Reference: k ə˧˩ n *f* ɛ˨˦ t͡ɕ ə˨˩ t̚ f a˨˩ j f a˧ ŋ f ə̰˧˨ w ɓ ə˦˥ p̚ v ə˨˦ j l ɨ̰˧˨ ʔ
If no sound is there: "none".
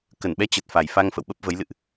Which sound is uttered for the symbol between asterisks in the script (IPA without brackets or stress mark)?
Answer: ɓ